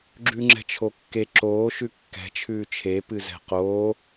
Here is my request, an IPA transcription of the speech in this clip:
ɡ͡ǁ ʉ ŋ͡ǁ ɛ̤ t͡ʃʰ o kː e ǁ oː ʃ ʉ kː ɛ̤ t͡ʃʰ ʉː t͡ʃʰ e p ɨ z ɛ̤ q oː

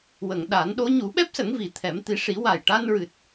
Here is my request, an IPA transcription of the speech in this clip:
w ə˨˩˨ ŋ ɗ a˨˩˦ n ɗ o˧˥ ɲ u˨˩˦ ɓ ɛ˦˥ p̚ s ə˨˩˦ ŋ v i˨˩ t̪ʰ ɛ˨˩˦ m t̪ i˨˩˦ ʂ i˨˩˦ w a˨˩ j ʈ a˧ n ɹ ɨ˨˩ t̚

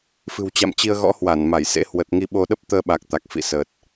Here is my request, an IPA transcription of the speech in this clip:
f ɨ̤˨˩ w t͡ɕ a̰˧˨ m t͡ɕ i˧ ə̯ ɣ ɔ̰˧˥ h w a˧˩ n m a˧˩ j s ḛ˧˥ h w ə˨˩ t̚ ŋ i˧ ɓ o˧ ɗ ə˦˥ p̚ t̪ əː˧ ɓ a˨˩ k̚ t̪ a˨˩ k̚ f ḭ˧˨ s əː˨˩ t̚

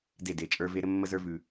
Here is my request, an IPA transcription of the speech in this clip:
d e˦˨ d e˨˦ t͡ʃʼ ə˞˦ v e˦ ɾ ɘ˦ mː ə˦ z ə˞˦ v ʉ˨

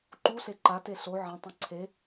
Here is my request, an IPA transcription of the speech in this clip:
ǃ u ɬ e ǃ a t e ɬ o ʕ ɐ̃ tˤ ɐ̃ ǀʰ e

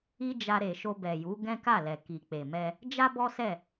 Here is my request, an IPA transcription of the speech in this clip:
i˦ d͡ʒ a˧ ɾ e˨ ʃ o˧ b ɛ˨ j u˨˦ ɡ ɛ̃˦ k a˦˨ l ɛ˨ k i˨ k͡p e˨ m ɛ˧ | d͡ʒ a˦ b ɔ˦ s ɛ˦˨

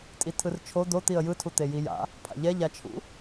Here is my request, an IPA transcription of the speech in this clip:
tʼ i tʰ ɯ r t͡ʃʰ o d̪ o t̪ i ə̯ j ɯ tʰ u t̪ e j i j a̰ | pʰ a̰ ʎ ɛ ʎ a t͡ʃʰ ṵ

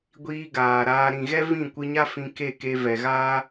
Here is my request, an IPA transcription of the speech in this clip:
ɡʷ iː˧ ɡ aː˨ ɾ aː˧ ɾ ĩ˨ ɣ ɛ˦ v ĩ˦˨ kʷ ɨ˧ ɲ a˦ f ĩ˧ k e˦˨ k e˧ v ɛ˨ ɣ aː˦

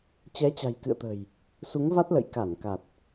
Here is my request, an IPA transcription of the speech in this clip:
t͡ɕ ɛ˨˦ t͡ɕ a̤˨˩ j k ɨ̰˧˨ ə̯ t̪ ə̤˨˩ j | s u˨˦ ŋ v a˦˥ t̚ l ə̰˧˨ j k a˧˩ n k a˨˩ t̚

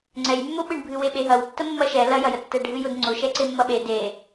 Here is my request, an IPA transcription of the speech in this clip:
ŋ͡ǀ ɛ j mː ʊ ɓ ɨ ɳ bʱ ɨ w e ɓ e ɦ ɐ w tː ə mː ɐ ʃ ɛ l ɐ j ɐ j ə tː ɛ ɖʱ ɨ j ʊ d ŋ͡ǀ ʊ ʃ ɛ ǀ e mː ɐ ɓ e d e

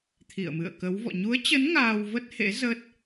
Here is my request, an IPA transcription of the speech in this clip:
t̪ʰ ḭ˧˨ ə̯ m ɨ̰˧˨ ə̯ k ə˨˦ w v ɔ̰˧˨ ɲ u˨˦ ə̯ t͡ɕ ə˨˦ n ŋ aː˧ w v ə˦˥ t̚ h ḛ˧˥ z ə˦˥ t̚

